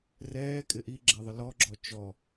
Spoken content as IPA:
r ɛː kʼ ɪ ʔ i ɡ͡ǁ ɛ ðˤ ə l ɔ ɡ͡ǁ ɔ t͡ʃ ɔ

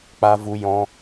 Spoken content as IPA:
k͡p a˧ v u˧ j ɔ̃˧

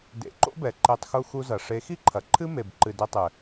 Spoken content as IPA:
d ḛ˨˦ ǃ o̰˦ b ɛ˨ ǃ e˧ tˤ x u˧ x u˧ z ɐ˨ ʂ e˨˦ x i˦ ǃʰ ɐ˨ ǃʰ ɨ˦ m e˨ b ǃ ɨ˨ d ɛ˧ tˤ ɘ˨

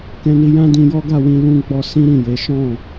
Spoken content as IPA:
k ɛ̃˧ n i˧ j ã˦ d ĩ˧ j ɔ˦ ɡ a˦˨ w ĩ˧ l ũ˧ ɡ͡b ɔ˧ s ĩ˦ ɾ ĩ˦˨ j e˨˦ ʃ ɔ̃˦˨

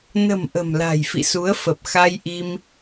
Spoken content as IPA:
n ə̤˨˩ m ʔ ə̤˨˩ m l a̤˨˩ j f ḭ˧˨ s u˨˦ ə̯ f ə˨˩ p̚ x a˧ j ʔ i˧ m

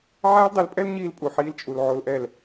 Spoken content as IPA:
ʕ aː˦ l dˤ e˨˦ l pʼ ɛ˦ l ɲ iː˦ l pʼ u˨ ħ iː˦ l t͡ʃʼ u˨ l ʕ o˦ l ʔ ɛ˦˨ l

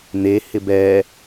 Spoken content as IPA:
n̪ e h ɪ b ɛ

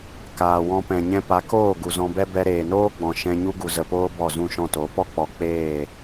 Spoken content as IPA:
k aː˨ w ɔ̃˧ p ɛ̃˨ ɲ ɛ̃˧ p a˨˦ k oː˦˨ ɡ u˨ z ɔ̃˧ b ɛ˦ b ɛ˧ ɾ eː˨ n oː˦ ɡ͡b ɔ̃˨ ʃ ɛ̃˧ ɲ u˦ ɡ u˨ z ə˨ p oː˦ b ɔ˦˨ z ũ˦˨ ʃ ɔ̃˦˨ t o˨˦ p ɔ˦ k͡p ɔ˨ k͡p eː˦˨

